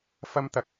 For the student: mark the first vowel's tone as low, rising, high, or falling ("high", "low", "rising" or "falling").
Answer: high